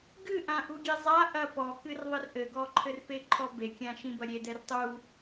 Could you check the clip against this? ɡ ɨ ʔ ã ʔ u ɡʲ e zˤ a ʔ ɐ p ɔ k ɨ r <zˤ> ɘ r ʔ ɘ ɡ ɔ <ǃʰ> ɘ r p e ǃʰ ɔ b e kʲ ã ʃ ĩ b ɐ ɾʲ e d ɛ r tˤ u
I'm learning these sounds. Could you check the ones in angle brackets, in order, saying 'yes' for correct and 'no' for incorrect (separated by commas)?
no, yes